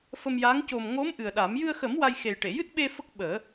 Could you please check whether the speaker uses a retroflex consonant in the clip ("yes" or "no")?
yes